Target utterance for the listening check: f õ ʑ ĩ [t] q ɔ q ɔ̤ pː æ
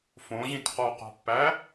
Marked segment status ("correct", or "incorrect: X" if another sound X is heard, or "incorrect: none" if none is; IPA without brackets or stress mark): correct